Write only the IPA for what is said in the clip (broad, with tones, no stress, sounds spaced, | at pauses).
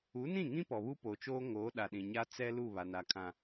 u˨˦ n ĩ˦˨ ŋ ĩ˦ p ɔ˨ β u˦ p o˨ t͡ʃ oː˦ ŋ oː˨˦ ɗ a˨ ɗ ĩ˨ ɲ a˦ t͡s ɛ˦ l u˦˨ β a˨ n a˨ kʰ ã˨